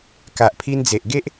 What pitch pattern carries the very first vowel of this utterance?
low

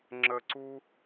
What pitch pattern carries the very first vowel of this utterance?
low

